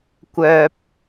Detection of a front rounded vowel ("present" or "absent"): present